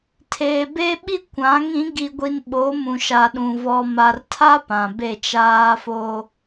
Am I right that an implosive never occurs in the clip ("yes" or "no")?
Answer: no